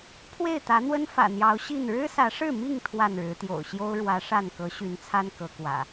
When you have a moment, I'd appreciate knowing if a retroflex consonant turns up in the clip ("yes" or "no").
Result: yes